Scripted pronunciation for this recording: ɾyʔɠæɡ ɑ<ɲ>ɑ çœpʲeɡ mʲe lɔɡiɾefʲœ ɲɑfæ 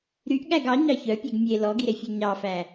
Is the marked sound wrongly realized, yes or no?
no